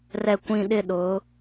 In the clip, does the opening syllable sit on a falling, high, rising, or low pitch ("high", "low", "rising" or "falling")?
low